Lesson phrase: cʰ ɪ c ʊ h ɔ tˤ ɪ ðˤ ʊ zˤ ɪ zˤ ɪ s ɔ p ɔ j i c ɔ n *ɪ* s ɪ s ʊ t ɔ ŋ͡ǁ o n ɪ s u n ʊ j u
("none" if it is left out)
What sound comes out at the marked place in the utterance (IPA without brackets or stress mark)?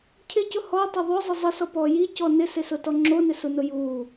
ɪ